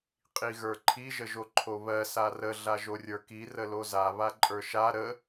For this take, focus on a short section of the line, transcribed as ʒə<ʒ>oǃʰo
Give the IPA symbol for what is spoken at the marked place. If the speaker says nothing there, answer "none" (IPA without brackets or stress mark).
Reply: ʒ